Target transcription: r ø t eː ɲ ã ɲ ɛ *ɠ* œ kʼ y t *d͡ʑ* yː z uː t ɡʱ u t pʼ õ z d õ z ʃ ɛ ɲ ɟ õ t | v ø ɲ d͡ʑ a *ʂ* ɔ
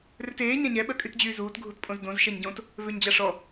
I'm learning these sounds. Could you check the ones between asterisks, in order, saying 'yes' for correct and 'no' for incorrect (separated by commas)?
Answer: no, yes, yes